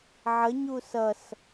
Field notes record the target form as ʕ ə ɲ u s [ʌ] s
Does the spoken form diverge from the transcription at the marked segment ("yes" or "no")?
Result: no